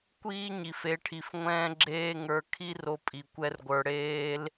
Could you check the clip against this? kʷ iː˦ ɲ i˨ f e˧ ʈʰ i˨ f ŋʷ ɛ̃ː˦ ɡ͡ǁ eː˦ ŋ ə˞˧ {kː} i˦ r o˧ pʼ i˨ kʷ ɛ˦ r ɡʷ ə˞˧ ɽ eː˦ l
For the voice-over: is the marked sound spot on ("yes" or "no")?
no